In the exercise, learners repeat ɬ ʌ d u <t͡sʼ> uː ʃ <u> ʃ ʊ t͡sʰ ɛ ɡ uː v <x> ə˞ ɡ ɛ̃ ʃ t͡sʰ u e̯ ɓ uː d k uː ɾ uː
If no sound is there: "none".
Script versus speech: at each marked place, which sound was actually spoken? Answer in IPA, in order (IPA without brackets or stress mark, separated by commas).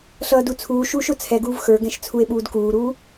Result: t͡sʰ, uː, x